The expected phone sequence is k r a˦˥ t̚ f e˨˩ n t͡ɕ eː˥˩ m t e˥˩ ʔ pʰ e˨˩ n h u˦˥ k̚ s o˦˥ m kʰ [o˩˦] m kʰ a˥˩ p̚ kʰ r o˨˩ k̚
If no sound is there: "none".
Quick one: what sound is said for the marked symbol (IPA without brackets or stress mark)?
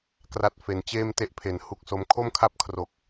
o˥˩